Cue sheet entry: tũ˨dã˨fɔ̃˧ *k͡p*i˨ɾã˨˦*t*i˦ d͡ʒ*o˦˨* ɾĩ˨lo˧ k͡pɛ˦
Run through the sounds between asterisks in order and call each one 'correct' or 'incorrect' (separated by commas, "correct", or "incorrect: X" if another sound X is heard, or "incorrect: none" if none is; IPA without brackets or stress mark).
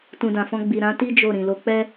incorrect: ɡ͡b, correct, correct